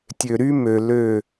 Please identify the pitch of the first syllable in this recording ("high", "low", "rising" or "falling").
low